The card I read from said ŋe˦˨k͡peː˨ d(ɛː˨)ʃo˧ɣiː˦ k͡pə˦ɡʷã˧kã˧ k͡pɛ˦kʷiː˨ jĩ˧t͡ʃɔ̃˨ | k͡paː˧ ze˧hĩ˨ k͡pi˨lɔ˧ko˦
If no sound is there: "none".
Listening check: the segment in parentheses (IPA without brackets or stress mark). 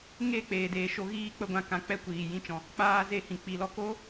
eː˨